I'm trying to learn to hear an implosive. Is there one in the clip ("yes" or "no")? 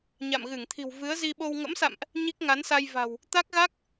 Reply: yes